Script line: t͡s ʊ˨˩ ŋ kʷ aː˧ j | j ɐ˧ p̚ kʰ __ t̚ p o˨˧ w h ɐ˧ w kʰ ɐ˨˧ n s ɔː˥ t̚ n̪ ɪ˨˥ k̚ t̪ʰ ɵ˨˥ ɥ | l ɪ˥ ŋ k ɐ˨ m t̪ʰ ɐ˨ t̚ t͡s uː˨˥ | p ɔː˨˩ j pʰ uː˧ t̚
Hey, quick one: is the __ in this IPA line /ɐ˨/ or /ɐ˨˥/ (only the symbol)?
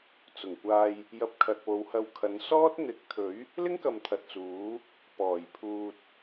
ɐ˨